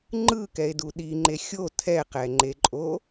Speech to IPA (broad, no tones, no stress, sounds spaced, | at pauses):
ŋ͡ǃ ɯ k ɛ e̯ d u ɗ i ŋ͡ǃ e xʲ o tʰ ɛ q ɛ ŋ͡ǃ e ǃʼ o